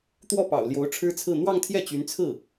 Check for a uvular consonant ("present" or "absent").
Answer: absent